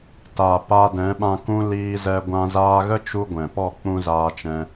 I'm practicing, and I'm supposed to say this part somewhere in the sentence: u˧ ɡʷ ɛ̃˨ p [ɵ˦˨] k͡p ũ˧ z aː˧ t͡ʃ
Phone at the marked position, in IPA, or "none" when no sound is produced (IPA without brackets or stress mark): ɔ˦˨